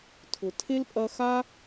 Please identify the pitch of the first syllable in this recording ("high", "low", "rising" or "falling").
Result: low